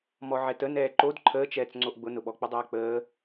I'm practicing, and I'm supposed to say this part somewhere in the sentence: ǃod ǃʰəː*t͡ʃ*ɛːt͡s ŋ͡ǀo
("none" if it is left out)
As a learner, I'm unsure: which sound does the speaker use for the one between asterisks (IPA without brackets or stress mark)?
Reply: t͡ʃ